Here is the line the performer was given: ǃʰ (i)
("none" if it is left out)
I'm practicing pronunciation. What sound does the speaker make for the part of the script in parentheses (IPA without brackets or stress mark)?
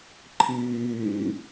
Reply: iː